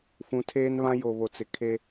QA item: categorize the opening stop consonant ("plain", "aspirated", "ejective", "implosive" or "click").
aspirated